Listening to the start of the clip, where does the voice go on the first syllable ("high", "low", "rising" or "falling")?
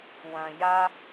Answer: low